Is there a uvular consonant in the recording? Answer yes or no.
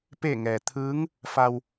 no